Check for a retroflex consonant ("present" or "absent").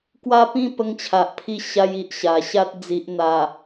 absent